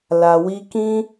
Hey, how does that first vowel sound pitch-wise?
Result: low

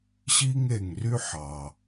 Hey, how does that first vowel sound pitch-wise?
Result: high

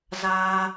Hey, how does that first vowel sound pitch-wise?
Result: high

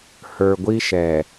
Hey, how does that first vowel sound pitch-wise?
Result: low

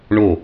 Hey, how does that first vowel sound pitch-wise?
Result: falling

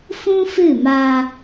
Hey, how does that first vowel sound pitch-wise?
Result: high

